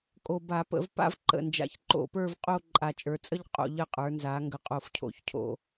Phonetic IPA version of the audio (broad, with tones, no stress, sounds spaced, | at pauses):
kʼ o˨˩ b a˧˩˧ p ə̰˧˩˧ v p a̰˥˧ v ǃ ə̰˨˩ n d͡ʒ a̰˨˩ ç ǃ o̰˧˩˧ p ə˞˥˧ v qʼ o˥˧ ǃʼ a˨˩ t͡ʃʼ ə˞˩˧ t͡sʼ ə˥˧ ʎ qʼ o̰˧˩˧ ʎ ə˨˩ qʼ ə˞˩˧ n z a˩˧ ŋ ɡ ə˨˩ qʼ o˨˩ f cʰ o̰˧˩˧ ç cʰ o̰˧˩˧